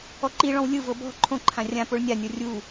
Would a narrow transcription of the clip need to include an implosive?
no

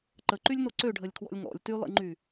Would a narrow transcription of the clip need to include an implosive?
no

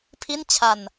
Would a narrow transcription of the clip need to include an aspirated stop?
yes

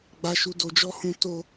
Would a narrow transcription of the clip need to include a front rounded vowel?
no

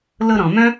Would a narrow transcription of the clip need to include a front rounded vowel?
yes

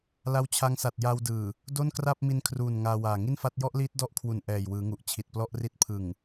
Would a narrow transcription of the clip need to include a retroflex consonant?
no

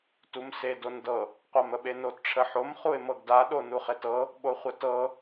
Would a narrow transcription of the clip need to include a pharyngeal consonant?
yes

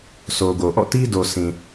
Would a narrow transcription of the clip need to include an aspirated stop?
no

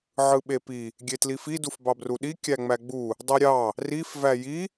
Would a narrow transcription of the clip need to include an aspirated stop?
no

